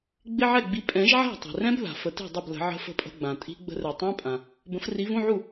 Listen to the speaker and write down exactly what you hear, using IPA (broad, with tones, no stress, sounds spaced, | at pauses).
ɡ͡b ɪ˧˥˧ ʕ ɛ˥˩ ɡ͡b i˨˦ pʼ ɛ̃˨˩˦ ʒ ʕ a̤˥˩ tˤ i̤˩ r ɛ̃˦˥ b ð a̤˩ f ə˨˩˦ t i̤˥˩ dˤ ə˥˩ b l ə̤˨˩˦ ʕ ə̤˧˥˧ f ə̤˥˩ pʼ ə̤˧˥˧ ɡ͡b ã˩ tʼ i̤˦˥ ɡ͡b ə̤˦˥ r ɛ˨˩˦ tˤ ĩ˧˥˧ pʼ ã˩ | b ə̃˨˦ f r i˨˦ v ũ˧˥˧ ʕ u˥˩